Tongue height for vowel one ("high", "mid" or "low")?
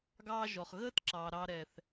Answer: low